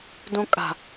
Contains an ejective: yes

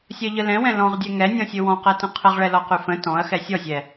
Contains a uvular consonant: yes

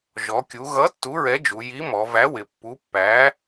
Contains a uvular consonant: no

